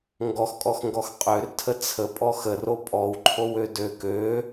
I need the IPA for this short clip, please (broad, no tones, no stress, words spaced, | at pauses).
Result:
ŋɡɔxkʼɔxŋɡɔx qʼørtʰə t͡sʰəpʼɔ xəro pʼɔwǃʰowø dø kø